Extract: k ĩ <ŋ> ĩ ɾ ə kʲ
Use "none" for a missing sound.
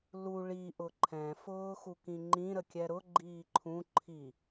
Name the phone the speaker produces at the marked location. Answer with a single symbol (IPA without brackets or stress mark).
ŋ͡ǃ